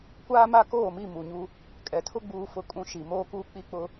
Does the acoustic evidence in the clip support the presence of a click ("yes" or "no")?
no